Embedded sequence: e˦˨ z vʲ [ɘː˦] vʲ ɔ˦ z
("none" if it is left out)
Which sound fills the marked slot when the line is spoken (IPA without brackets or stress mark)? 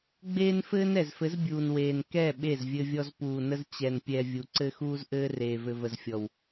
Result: ɘ˦